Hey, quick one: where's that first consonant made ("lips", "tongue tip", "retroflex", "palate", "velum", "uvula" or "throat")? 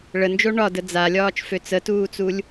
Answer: retroflex